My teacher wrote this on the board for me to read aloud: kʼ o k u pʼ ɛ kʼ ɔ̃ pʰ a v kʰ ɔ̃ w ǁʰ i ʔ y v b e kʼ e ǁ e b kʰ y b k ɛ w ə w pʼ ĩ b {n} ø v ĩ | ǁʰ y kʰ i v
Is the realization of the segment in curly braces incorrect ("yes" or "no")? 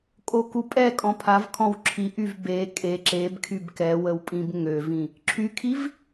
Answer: yes